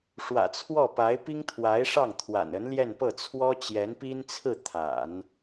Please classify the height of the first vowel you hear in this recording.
low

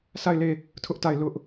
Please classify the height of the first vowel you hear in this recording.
low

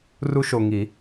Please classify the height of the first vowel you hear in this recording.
high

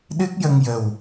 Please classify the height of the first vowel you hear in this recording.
high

